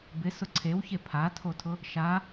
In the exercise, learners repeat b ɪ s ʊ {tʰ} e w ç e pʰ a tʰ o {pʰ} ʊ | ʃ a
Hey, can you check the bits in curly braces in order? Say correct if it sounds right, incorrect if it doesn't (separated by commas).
incorrect, incorrect